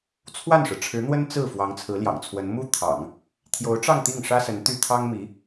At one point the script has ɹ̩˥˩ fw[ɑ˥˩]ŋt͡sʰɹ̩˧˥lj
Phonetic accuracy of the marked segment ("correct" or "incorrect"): incorrect